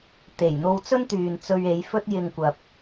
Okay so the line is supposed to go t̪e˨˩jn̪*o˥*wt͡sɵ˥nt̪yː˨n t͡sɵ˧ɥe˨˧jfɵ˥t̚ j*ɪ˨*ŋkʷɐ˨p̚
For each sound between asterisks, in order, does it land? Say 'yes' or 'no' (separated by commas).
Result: no, no